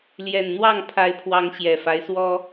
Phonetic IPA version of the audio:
l j ɛ˨˩ n n̪ w ɑ˥˨ ŋ pʰ a˨˦ ɪ̯ pʰ w ɑ˨˦ ŋ ɕ j ɛ˨˩ f a˦ ɪ̯ s w ɔ˦

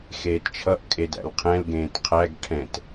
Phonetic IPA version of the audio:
x eː t t͡ʃʰ ʌ ʔ kʼ e d æ̰ l qʰ ɛ̃ l ɡ ẽː t qʰ æ ɡ ʈʰ ɛ̃ t

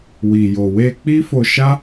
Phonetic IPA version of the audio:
w i˨ j o˨ w e˧ k͡p i˦ f o˧ ʃ a˦

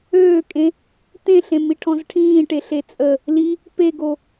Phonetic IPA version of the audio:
øː kʼ ẽ | t̪ ẽ ɬ ẽ m i ʈʰ ɔ̃ z ʈʰ ĩː ʈ e ɬ e t͡sʼ ə | l i | p e ɡ o

